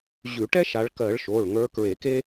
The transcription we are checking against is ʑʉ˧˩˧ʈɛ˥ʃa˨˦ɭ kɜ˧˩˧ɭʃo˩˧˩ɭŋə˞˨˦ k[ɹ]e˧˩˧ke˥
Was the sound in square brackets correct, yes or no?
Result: yes